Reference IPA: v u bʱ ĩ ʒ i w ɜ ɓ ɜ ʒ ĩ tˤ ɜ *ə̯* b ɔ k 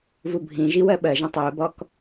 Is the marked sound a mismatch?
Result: yes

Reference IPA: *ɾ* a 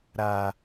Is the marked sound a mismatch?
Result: no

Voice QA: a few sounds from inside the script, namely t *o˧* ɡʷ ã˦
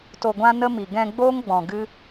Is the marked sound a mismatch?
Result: no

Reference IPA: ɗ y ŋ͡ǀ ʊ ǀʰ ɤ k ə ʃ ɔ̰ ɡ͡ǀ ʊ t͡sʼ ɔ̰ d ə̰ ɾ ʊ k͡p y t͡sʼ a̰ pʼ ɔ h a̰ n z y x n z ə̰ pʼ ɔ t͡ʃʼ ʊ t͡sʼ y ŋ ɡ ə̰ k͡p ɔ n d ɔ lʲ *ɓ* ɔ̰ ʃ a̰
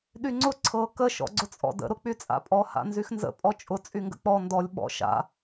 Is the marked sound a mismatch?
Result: no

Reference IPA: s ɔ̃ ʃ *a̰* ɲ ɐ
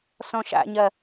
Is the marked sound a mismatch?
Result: no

